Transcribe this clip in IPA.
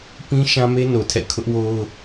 pĩ˦ ʃã˦me˦no˨tʰɛ̰˦˨ kʰʊ˦ʔwo˦ʊ̯

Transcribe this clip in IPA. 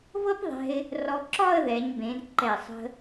vɤ˥pðˤɛ̤˧ɪ̯ | rɔ˧ ǁɒ˥˧ə̯ðɛ˩˧ɲbẽ˩˧d ǃɛ˧˩sˤə̤˧

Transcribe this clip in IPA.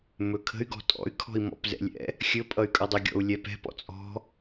mɵkʰə̤y̯ ɡɔ̤tʼɔ̰y̯ kʰɔ̤i̯mɔ̰pzɛ̰lʲɛ̰ | xʲɵpʼʌy̯kʼʌdˤɛ ɡʲɔ̰u̯lʲɛpɛ̤p ɔ̰t͡sʼɔ̤

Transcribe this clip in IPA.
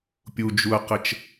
pʲud͡ʒuɐ̯qət͡ʃ

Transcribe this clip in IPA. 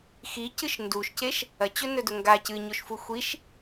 xi cɨʃnduʃceʃ | ɐt͡ɕɵ nɵdɵŋɡa cɨɲoʃ fuxʷiʃ

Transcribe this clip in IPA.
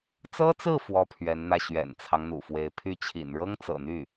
t͡sɤ˥t͡sɹ̩˥˩ fwɔ˥pʰɥɛ˧˥nn̪ä˥˩ ɕɥɛ̰˨˩nt͡sʰɑ˦ŋn̪ṵ˨˩fwe˧˥ɪ̯ pʰy˥˩ t͡ɕʰḭ˨˩n ɻɤ˥ŋt͡sɤ̰˨˩n̪y˥˩

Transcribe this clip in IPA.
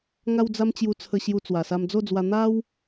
ŋa˦wd͡za˦mt͡ɕju˧t͡sʰə˧ ɕju˧t͡swa˨˩sa˧m d͡zo˥˧d͡zwa˧ n̪a˦w

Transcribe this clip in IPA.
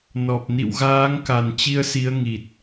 nɔ˨˩p̚nḭ˧˨wɣaː˨˦ŋ ka˨˩nt͡ɕi˧ə̯si˨˦ə̯ ŋi˨˩t̚

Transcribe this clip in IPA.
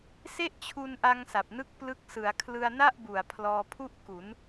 se˥˩ʔt͡ɕʰu˧nʔa˧ŋ sa˨˩p̚nɯ˥˩k̚ plɯ˦˥k̚sɯ˩˦a̯ kʰlɯ˧a̯na˥˩ʔbu˨˩a̯ pʰlɔː˧pʰu˥˩ʔ ku˩˦n

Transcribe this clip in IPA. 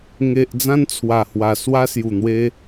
ŋe˨ʔ d͡zã˧nt͡sʰwa˨˩hwa˨˩ swa˧sju˨˩n̪we˧

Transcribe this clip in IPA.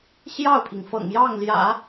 ɕjɑ˥˩ʊ̯pʰi˩ŋ fɤ̰˨˩ŋjɑ˥˩ŋljä̰˨˩˦

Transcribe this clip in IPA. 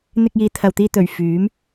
n̪ɪ˧k̚jiː˨˧ t̪ʰɐ˨wt̪iː˧t̪ɵ˨˩ɥ fyː˨˥m

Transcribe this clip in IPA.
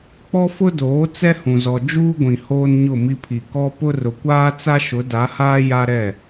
k͡pɔ˦fʊ˦doː˨˦ t͡sɛ˦hũ˨zɔ˨ d͡ʒuː˦ɡʷĩ˨ hoː˦nɲʊ˦˨mi˦pʰi˨ kɔ˦ pʊ˦rʊ˨kʷaː˦t͡sa˦ ʃʊ˨˦da˨˦haː˦ ja˦ɾɛ˦˨

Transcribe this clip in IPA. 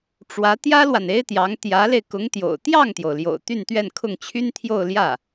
ʈ͡ʂwä˧˥ t̪jä˥lwa˨n e˥ɪ̯t̪jɑ˧˥ŋ t̪jä˧˥le˧ɪ̯ kʊ˧˥ŋt̪jo̰˨˩ʊ̯ t̪jɑ˥˩ŋt̪jo˩ʊ̯ljo̰˨˩ʊ̯ t̪y˥˧nt̪ɥɛ˥˧nkʰʊ˥˩ŋ t͡ɕʰy˥nt̪ʰjo˥˧ʊ̯ljä˥˩

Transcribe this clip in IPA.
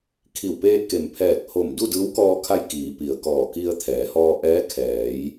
kʰi˧˩wpeː˧t̚ke˩m pʰɛː˧˩k̚ho˧˩m du˥˨dɯː˧˥wkɔː˧kʰa˧j kiː˩˧pi˩ə̯kɔː˧˩ ki˧ə̯t̪ʰɛː˩˧hɔː˧ʔɛː˧˥ kʰɛː˩˧j

